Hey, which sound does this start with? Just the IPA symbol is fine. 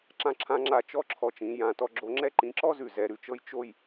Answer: ǁ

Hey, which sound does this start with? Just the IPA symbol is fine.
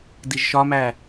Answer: d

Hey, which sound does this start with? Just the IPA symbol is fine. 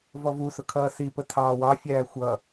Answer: v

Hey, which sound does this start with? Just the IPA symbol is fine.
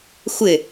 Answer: xʷ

